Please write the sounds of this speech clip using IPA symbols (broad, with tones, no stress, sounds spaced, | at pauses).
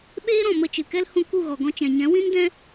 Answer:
ɓ eː˦ ɾ ɔ̃˨ m ə˧ t͡ʃ ɨ˨ k ɛ˦ l h ũ˧ k u˦˨ ɣ ɔ˨ ɡ ɔ̃˧ t͡ʃ ɛ̃˨ ɲ ɛ̃˨˦ w ĩ˦ n d ɛ̃˦